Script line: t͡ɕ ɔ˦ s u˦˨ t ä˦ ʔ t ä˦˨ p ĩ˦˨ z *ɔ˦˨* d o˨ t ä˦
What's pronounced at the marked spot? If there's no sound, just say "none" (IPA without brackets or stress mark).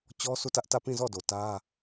ɔ˦˨